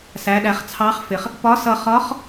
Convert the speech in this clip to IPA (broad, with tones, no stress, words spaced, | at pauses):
sæ˩˧ɗæ˩˧χ t͡sʰɑ˧˥χfɪ˩χ | pɒ˧˥sʌ˧χɒ˧˥χ